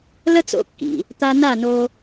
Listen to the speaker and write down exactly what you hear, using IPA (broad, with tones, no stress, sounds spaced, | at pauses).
l ə˥ t͡s o̰˧ kː ḭ˩ | t̪ a˧ n a˥˩ n o˧